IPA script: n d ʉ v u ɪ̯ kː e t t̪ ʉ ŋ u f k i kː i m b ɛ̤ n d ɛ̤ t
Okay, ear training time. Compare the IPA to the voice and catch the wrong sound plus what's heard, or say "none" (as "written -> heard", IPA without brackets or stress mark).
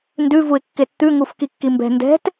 none